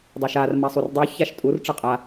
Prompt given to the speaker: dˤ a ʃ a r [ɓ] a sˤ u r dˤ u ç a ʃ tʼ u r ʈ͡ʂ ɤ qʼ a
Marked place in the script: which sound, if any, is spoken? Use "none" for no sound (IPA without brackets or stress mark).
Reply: m